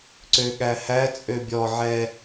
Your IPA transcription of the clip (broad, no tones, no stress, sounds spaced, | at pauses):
ǀ ø ɠ æ h æ t͡sʼ ø bʲ ɔ ʕ ɛ